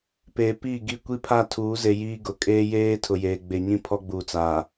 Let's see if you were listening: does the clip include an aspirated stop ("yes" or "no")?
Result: yes